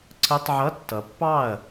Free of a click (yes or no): no